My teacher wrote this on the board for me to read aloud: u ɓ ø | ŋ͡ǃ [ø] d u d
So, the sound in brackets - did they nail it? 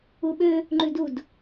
no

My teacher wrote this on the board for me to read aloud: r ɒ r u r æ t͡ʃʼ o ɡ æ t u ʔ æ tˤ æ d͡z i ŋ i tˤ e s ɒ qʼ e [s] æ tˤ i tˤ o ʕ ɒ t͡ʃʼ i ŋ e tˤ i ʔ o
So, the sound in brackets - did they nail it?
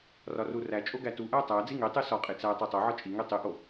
no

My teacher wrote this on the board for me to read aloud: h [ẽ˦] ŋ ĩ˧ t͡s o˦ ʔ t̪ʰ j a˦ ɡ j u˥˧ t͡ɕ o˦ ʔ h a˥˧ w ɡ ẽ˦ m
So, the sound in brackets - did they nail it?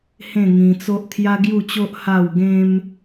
no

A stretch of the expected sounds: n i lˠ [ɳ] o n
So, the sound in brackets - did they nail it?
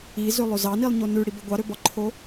no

